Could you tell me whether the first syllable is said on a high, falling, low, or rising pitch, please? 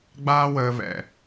high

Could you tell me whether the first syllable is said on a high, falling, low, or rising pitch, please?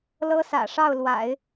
high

